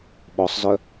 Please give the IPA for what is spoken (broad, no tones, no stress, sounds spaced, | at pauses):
ɓ ɔ sˤ z œ